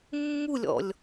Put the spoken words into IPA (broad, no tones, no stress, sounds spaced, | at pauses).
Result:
mː u lʲ ɔ̰ lʲ